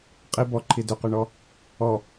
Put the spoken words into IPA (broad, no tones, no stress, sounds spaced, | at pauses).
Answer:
qʼ i b ɔ ǃʰ i d ʏ q y ɳ ɔ | ɔ